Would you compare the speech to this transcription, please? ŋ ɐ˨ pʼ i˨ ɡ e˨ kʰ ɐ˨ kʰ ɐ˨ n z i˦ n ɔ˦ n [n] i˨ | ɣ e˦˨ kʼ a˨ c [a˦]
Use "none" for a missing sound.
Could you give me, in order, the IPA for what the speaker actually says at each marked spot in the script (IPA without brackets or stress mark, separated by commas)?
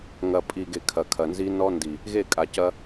d, ɐ˦